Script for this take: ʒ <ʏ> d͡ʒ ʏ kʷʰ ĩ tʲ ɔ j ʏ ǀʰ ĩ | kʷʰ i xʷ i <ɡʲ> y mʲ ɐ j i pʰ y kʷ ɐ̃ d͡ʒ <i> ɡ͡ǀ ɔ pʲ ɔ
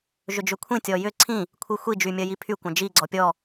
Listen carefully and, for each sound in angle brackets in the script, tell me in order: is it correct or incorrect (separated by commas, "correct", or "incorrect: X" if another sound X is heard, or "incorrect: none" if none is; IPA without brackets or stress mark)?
correct, incorrect: d͡ʒ, correct